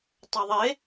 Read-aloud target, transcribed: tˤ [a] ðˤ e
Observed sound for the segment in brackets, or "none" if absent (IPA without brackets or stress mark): ə